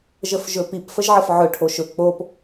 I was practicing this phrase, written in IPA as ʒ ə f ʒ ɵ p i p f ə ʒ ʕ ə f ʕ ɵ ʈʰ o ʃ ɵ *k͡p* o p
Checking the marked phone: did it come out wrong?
no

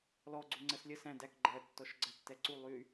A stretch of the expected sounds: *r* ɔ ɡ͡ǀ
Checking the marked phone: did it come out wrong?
yes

